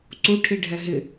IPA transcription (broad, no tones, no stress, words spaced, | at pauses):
ǀuʈʰiɖʱɛ ɦɪ